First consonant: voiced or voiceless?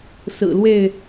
voiceless